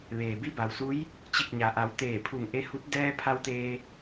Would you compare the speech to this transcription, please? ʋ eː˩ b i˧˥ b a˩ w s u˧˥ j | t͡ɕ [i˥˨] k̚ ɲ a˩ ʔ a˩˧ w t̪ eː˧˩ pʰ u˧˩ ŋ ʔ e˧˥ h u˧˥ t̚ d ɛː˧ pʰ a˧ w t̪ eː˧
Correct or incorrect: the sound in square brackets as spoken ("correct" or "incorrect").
incorrect